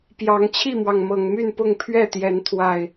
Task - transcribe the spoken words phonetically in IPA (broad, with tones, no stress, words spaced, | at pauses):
pjɑ˨˦ŋ t͡ɕʰi˥˨mwɑ˩ŋ mɤ˨˩ŋ my˥˨npʊ˥˨ŋ pʰɥɛ˥˨t̪jɛ˨˦n t̪ʰwa˨˩ɪ̯